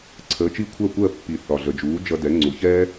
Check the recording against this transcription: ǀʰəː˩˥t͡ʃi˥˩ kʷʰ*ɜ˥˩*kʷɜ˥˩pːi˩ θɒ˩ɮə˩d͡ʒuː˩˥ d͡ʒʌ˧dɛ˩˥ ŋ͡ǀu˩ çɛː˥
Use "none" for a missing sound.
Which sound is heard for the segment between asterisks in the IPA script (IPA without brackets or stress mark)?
ɜ˥˩